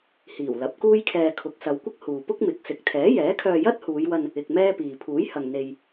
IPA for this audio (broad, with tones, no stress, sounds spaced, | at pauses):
h iː˨˩ w l ɐ˨˥ p̚ k uː˥ j kʰ ɛː˧ kʰ ʊ˨˥ k̚ s ɐ˨˧ w kʷ ɪ˥ k̚ h uː˨ p ʊ˥ k̚ m ɪ˨˥ k̚ s ɪ˨ k̚ t̪ʰ ɛː˨˥ j ɛː˨˥ kʰ œː˧ j ɐ˥ t̚ h uː˨˧ j w ɐ˧ n | ɪ˧ k̚ m ɛː˥ p iː˨ pʰ uː˨˥ j h ɐ˨ ŋ n̪ e˧ j